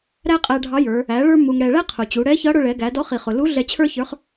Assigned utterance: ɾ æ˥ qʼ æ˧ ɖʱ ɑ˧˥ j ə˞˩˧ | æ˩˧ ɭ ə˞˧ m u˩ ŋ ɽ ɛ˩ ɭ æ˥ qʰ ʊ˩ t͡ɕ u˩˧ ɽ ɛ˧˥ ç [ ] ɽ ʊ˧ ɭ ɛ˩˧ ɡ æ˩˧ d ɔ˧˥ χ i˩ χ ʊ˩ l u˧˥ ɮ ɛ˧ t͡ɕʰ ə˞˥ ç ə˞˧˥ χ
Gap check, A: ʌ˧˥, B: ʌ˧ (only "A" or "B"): A